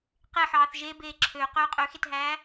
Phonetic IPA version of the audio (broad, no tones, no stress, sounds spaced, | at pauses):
q e ħ ɑː θ ʒ e b eː ǁʰ ø q øː qʼ ø x e t ɦ æː